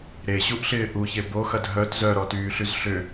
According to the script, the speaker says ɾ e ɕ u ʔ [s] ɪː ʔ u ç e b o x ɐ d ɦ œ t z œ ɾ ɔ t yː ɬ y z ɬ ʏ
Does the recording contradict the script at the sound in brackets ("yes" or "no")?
yes